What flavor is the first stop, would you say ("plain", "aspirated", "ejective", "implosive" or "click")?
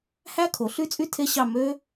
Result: aspirated